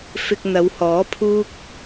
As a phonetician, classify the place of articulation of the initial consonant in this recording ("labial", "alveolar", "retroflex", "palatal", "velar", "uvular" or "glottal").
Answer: labial